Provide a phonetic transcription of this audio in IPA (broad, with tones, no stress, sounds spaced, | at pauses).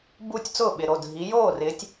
b u˥˩ tʲ t͡s ʊː˥˩ ɓ ɪ˩˧˩ ɾ o˩˧˩ dʱ i˨˦ j oː˥˩ r ɪː˨˦ tʲ